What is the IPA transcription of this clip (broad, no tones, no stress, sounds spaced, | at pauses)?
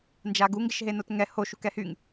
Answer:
n d͡ʒ a ɡ u ŋ ɡ ɪ ʃ ɦ e n o t ŋ ɛ h o ʃ u k ɛ h y ŋ